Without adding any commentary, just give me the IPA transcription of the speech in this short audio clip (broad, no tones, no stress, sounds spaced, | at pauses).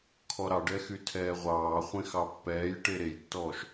kʰ ɔ ɾ ɑ ɖ ɛ x y tʰ ɛː ʁʷ ɑː χʷ ẽ x ɑ pː ɛː j ʈ e ɾ e j tː ɔː ʃ